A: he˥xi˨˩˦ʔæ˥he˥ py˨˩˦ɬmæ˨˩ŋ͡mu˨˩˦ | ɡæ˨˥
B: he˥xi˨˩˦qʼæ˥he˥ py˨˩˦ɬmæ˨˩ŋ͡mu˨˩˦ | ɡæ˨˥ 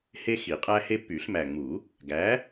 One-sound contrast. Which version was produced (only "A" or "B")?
B